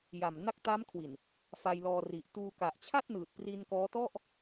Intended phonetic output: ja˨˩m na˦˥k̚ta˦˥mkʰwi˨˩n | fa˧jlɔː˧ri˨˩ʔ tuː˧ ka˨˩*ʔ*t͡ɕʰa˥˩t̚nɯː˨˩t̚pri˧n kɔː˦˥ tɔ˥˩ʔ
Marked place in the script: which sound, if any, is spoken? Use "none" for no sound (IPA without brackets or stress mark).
ʔ